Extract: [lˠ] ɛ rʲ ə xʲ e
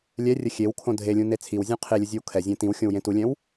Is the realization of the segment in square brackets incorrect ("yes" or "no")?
yes